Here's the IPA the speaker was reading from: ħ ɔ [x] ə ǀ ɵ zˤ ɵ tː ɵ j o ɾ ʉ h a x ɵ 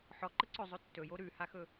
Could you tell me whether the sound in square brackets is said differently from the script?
yes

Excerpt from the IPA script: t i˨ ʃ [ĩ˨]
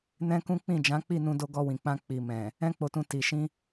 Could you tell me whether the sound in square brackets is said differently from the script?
yes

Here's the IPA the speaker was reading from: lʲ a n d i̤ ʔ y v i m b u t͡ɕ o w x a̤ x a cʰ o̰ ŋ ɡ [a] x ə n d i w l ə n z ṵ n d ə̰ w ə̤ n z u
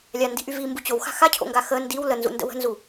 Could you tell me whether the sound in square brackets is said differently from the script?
no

